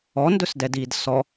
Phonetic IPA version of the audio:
ɔ n d ɵ s d ɛ d iː d s ɔ

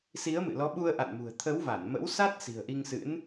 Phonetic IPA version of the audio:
s i˨˦ ə̯ m ɨ̰˧˨ l ɔ˨˦ ɓ u˧ ə̯ ʔ a̰˧˨ n m ṳ˨˩ ə̯ t̪ʰ ə˨˦ w v a˧˩ n m ə̰˧˥ w s a˦˥ t̚ s i̤˨˩ ə̯ ʔ i˧ ŋ s ɨ̰˧˥ n

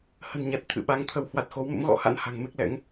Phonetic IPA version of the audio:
h ə̤˨˩ n ɲ a˨˩ t̚ t̪ʰ ɨ̰˧˨ ɓ a˨˦ ŋ t̪ʰ ə˧˩ w h w a˨˩ t̚ x o˨˦ w m ə̰˧˥ m ɣ ɔ̰˧˥ h a̰˧˥ n h a̤˨˩ ŋ m e˦˥ k̚ l ɛ̰˧˥ ŋ

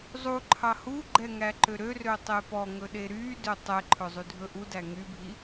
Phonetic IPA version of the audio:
zˤ u ǃʰ ɑ h u ɡ͡ǃ ɛ ŋ æ ǃ ø ɾ ø r ø tˤ e p ɔ ŋ ɵ ɗ e ɾ y d ø tˤ ɛ ǃʰ ɵ zˤ y dʱ ɵ ʔ u d æ ŋ y bʱ i

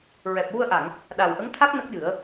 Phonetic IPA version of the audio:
ɹ ɛ˨˩ p̚ w u˧ ə̯ ʔ a˨˩˨ ŋ | ɗ a˨˩ w ʔ ə˧˥ ŋ t̪ʰ a˦˥ k̚ n ə˦˥ k̚ j ɨ˨˩˦ ə̯

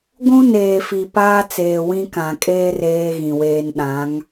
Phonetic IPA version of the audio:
ɡʷ ũ˦ n eː˨ f i˨ p aː˦ t͡s eː˨ w ĩ˦ k ã˨ kʼ eː˦ r eː˦ ɣ ĩ˨ w eː˦ n ɗ ã˨˦ ŋ

